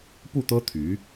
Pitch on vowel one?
falling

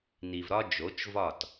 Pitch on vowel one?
low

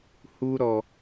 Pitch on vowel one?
low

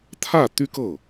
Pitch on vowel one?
falling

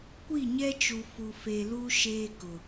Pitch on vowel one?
falling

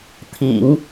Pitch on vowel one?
low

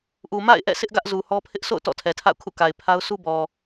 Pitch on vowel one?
low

